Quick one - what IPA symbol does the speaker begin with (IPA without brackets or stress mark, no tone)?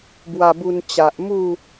b